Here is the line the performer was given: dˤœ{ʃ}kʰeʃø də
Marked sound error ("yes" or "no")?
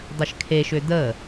no